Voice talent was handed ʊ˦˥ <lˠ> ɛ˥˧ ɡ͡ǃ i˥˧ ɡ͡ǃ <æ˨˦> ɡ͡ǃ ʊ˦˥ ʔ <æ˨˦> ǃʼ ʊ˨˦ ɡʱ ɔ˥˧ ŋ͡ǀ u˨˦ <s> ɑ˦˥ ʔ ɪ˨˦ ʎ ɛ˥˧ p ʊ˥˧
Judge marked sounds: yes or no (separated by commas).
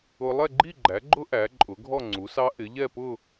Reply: yes, yes, yes, yes